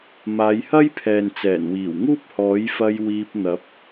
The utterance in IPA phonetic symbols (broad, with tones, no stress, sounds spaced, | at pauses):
m aː˨˧ j h ɐ˥ j pʰ ɛː˨ n t͡s ɛː˨˩ n w iː˨˩ w ŋ uː˥ p̚ h ɔː˨˥ j f ɐ˧ j w iː˧ p̚ n̪ ɐ˨˥ p̚